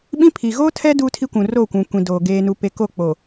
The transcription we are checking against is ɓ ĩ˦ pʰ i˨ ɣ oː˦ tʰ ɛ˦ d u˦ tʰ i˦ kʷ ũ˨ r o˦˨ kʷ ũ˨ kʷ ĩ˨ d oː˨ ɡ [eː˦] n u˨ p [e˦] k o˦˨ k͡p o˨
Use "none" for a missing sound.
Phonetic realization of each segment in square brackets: eː˨, e˨

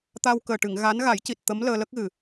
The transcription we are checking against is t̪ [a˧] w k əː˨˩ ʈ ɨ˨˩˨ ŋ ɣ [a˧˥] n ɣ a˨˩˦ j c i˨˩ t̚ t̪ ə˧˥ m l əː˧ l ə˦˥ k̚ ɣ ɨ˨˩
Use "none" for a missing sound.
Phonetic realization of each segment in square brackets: a˧, a˧˥

